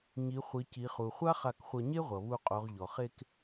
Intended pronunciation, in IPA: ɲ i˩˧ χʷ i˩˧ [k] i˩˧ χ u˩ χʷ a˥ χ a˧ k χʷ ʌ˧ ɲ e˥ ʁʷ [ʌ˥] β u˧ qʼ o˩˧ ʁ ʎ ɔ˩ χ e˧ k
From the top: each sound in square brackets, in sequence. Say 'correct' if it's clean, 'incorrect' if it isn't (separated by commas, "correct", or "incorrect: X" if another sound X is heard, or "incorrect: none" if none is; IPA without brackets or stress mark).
incorrect: c, incorrect: ʌ˩